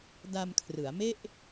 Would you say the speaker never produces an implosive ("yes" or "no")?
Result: yes